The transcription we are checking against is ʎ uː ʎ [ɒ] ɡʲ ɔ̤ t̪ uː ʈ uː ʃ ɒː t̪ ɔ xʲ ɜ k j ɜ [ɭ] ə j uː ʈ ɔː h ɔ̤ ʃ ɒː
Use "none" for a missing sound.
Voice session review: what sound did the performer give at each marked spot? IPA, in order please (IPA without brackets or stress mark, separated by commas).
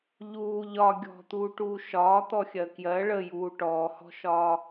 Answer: ɒ, ɭ